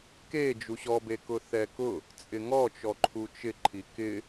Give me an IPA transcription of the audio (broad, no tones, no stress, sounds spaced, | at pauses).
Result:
k e d͡ʒ u ɕ ɔ b e k ʊ θ ɛ k ʊ | t͡sʼ ɪ ŋ ɔ t͡ʃ ɔ ǃʰ u t͡ʃ ɪ ǃʰ i k ɪ